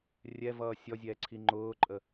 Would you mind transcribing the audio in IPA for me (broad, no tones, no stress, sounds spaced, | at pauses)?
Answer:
rʲ ɛ v ʌː sʲ ɔ zʲ ɛː ǀʰ i ŋ͡ǃ ʊː ǃʼ ə